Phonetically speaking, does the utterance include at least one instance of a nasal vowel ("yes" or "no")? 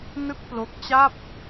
no